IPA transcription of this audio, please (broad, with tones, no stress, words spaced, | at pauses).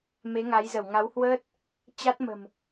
me˨˦ŋa˨˦jzə˧˩w ŋa˨˦whwəː˦˥t̚ | t͡ɕa˦˥t̚mə̤˨˩m